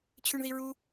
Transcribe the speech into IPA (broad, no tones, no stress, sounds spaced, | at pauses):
t͡ɕʰ ʉ ɳ ð i ɹ u